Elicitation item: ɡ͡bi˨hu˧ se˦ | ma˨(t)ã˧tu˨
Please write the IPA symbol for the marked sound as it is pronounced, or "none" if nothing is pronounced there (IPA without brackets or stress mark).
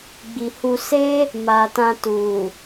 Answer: t